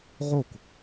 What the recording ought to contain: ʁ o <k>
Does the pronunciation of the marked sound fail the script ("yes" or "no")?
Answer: no